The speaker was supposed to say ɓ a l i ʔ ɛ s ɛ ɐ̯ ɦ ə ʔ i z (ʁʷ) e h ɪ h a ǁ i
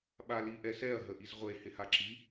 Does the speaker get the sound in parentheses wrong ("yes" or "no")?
no